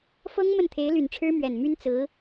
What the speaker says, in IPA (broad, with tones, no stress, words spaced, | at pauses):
fɤ˥ŋ mə˥˩nt̪ʰe˧˥ɪ̯ly˨˩nʈ͡ʂʰɻ̩˥ mɥɛ˨˩nmy˥n t͡sɹ̩˧˥